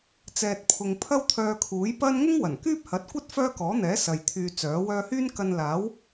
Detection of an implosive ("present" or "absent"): absent